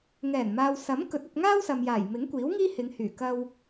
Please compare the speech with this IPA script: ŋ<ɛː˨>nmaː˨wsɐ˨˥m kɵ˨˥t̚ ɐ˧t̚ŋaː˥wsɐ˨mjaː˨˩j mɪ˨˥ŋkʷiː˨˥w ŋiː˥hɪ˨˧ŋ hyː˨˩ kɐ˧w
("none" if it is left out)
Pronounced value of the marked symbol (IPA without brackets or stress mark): ɛː˨˩